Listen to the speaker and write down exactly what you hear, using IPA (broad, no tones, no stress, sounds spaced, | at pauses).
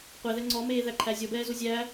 qʷ e ð ɛ ŋ͡ǀ ɔ m eː ð æ ǃʰ æ zʲ ɔ b ɛː z u zʲ æ